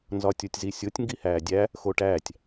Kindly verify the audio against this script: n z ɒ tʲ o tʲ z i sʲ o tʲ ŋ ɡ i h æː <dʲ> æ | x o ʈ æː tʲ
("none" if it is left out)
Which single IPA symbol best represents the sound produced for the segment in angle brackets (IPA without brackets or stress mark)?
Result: dʲ